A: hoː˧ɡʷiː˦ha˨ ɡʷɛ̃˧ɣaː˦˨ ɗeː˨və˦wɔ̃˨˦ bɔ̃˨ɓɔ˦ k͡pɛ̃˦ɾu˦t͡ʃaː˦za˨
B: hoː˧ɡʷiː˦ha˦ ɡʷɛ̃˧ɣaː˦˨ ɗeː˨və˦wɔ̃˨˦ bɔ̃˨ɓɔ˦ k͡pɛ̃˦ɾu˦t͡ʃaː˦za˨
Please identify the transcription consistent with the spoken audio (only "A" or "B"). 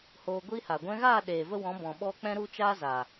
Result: A